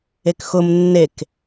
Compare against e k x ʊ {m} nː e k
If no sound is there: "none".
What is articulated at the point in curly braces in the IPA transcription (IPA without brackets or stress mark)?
m